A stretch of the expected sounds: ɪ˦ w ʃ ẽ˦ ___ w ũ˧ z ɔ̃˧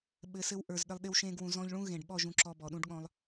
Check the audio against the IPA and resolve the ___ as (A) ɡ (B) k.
A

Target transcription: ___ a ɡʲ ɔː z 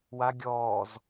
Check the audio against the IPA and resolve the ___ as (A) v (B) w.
B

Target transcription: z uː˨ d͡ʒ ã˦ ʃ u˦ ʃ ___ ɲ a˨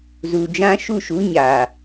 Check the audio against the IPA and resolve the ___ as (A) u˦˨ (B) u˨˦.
B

